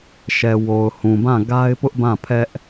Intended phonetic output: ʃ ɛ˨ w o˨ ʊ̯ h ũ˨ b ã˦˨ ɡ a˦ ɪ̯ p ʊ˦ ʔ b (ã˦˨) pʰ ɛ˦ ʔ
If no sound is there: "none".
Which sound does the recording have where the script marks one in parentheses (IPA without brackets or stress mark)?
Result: ã˦˨